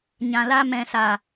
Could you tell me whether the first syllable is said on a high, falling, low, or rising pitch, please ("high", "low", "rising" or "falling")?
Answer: low